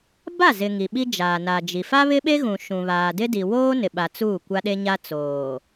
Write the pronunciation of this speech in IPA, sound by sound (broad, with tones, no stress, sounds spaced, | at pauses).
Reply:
b a˦˨ z ɪ˨ ŋ i˨ ɓ i˦ d͡ʒ aː˨ n a˨ d͡ʒ i˨ f a˦ β ɪ˦ ɓ e˦ ɣ ũ˨ ʃ ũ˨ β aː˨ d ɪ˦ d i˨ w oː˦ n ɪ˨ ɓ a˨ t͡s uː˦˨ kʷ a˦ ɗ e˦ ɲ a˦ t͡s oː˨